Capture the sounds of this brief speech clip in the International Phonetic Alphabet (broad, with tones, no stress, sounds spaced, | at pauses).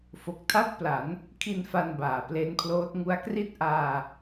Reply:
f o˨˩ k̚ tʰ a˥˩ t̚ p l a˩˦ n | kʰ i˧ n f a˧ n b aː˨˩ p l e˦˥ n pʰ l oː˦˥ t̚ ŋ u˦˥ a̯ k r i˥˩ t̚ ʔ aː˧